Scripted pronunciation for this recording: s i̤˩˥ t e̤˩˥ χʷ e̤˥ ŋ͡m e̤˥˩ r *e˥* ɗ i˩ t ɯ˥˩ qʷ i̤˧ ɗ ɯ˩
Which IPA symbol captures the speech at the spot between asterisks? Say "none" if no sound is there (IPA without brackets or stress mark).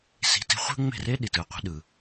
e˥